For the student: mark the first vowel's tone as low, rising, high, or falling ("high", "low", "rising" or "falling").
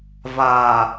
low